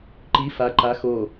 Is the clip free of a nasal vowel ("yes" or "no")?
yes